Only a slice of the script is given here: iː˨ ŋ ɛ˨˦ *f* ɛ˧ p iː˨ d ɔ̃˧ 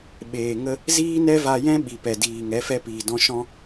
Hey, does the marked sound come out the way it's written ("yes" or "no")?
yes